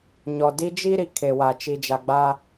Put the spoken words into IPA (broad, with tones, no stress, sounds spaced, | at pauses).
ɲ ɔ˨ d i˦ d͡ʒ i˦ ɾ i˨ kʰ e˨ w a˨ t͡ʃ i˨ d͡ʒ a˨ ɡ͡b a˦